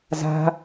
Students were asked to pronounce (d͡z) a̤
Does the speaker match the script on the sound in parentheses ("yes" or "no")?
no